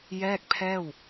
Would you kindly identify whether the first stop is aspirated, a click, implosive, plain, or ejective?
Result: plain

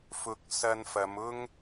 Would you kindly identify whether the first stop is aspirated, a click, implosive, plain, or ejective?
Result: plain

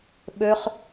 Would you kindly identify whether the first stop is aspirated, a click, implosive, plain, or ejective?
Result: implosive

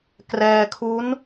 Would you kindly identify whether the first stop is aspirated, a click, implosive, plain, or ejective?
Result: plain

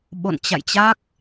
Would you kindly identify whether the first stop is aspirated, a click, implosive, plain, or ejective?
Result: implosive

